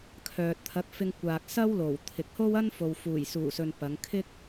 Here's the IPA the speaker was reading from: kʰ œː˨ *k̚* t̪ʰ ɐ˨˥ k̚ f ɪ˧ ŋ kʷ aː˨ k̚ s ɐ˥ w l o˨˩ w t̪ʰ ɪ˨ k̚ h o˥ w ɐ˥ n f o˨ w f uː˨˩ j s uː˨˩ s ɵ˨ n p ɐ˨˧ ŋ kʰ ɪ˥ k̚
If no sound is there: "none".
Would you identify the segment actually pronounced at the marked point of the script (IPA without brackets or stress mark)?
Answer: t̚